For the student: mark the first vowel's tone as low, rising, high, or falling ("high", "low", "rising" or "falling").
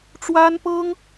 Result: high